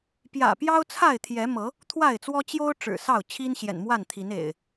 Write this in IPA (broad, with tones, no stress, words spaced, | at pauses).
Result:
pjä̰˨˩ pjɑ˦ʊ̯t͡sʰa˥˨ɪ̯t̪ʰjɛ˨˦mɤ˨˦ | t̪ʰwa˥˨ɪ̯t͡swɔ˦ t͡ɕjo˦ʊ̯ ʈ͡ʂɻ̩˨˩sɑ˥˨ʊ̯ t͡ɕʰi˦nɕjɛ̰˨˩nmwa˥˨nt̪ʰi˨˦n ḛ˨˩ɪ̯